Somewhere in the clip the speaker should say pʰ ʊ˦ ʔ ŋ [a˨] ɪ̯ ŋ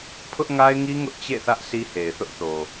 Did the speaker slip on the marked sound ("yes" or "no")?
yes